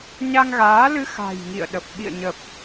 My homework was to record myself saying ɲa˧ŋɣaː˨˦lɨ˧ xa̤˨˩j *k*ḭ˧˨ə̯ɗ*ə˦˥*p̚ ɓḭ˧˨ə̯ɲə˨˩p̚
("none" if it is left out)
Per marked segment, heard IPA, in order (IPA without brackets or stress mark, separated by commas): ŋ, ə˨˩